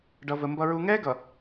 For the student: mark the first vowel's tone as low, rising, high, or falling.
low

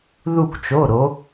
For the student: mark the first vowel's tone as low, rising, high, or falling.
falling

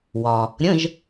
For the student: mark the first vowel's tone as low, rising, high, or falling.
low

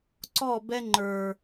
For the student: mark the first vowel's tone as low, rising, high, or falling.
falling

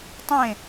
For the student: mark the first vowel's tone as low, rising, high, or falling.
falling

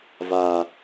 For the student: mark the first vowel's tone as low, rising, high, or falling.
low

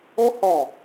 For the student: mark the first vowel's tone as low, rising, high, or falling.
high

